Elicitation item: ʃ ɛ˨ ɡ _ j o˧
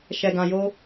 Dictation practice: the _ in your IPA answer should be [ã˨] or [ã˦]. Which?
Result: ã˨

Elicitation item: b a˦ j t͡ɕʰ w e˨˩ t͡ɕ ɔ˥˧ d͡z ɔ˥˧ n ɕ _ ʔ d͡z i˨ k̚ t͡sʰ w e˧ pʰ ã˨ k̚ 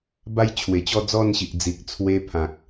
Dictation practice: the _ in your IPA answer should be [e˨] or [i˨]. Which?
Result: i˨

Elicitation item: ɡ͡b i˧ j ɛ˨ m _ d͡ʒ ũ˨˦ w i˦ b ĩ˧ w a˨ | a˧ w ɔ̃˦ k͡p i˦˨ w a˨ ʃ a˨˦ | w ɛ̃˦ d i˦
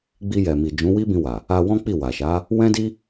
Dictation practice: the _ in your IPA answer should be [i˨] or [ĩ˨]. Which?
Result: i˨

